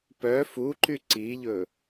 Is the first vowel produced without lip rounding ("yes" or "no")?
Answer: no